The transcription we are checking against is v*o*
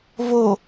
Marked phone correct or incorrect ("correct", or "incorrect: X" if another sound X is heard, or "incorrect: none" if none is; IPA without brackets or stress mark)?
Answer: correct